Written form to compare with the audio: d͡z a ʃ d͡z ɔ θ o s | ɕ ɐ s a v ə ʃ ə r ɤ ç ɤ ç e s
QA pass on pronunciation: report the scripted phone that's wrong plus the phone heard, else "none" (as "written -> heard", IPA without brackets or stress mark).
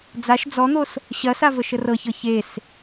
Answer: θ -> n̪